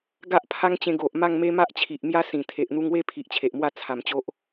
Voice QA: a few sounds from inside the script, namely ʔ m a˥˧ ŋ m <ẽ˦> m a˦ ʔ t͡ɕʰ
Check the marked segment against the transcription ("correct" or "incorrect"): incorrect